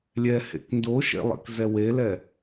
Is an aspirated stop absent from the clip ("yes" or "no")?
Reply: yes